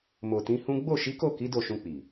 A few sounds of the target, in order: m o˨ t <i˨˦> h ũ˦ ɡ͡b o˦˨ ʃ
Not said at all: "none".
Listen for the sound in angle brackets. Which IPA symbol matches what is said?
ĩ˨˦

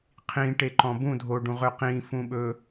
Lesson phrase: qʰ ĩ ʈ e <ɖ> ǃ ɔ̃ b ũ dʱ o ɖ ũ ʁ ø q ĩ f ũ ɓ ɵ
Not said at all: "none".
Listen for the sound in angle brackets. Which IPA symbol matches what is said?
none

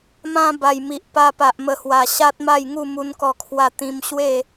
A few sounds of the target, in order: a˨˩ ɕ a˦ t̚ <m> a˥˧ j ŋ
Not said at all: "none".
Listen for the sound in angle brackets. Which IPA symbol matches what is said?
m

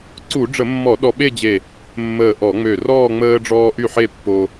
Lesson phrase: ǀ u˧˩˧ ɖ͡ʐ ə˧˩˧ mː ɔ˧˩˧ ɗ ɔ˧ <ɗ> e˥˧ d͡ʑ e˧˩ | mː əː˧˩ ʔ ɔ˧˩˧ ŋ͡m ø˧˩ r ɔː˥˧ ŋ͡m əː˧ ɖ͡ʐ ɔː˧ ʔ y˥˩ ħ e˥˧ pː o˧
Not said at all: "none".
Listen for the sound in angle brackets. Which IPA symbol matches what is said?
ɓ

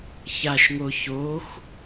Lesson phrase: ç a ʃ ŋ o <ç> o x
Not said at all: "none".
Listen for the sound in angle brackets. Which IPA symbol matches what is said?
ç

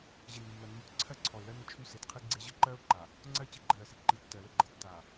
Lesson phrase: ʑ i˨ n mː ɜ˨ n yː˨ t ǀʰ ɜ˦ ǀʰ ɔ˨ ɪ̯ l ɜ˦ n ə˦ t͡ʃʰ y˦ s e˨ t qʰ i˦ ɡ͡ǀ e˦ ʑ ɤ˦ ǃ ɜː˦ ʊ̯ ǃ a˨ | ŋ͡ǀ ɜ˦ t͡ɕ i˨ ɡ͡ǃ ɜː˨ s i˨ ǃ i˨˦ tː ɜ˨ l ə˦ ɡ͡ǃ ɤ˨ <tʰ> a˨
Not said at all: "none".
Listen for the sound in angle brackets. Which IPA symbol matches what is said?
tː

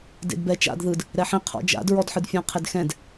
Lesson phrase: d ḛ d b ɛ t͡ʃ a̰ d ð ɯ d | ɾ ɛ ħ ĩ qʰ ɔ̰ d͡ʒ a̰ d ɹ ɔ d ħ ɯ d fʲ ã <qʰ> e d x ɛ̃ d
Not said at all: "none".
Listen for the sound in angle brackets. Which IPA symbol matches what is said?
qʰ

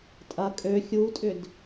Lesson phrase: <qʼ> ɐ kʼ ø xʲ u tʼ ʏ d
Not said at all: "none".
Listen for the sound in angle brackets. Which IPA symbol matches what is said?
tʼ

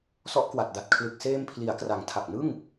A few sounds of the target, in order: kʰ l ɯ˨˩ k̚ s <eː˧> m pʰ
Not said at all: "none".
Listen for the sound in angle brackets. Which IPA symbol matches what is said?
eː˧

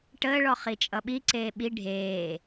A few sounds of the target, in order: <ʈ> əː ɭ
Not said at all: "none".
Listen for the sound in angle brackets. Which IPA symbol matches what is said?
ʈ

